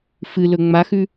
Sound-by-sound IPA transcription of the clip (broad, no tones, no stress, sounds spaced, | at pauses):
f ɨ l ɵ ŋ͡m a x ʉ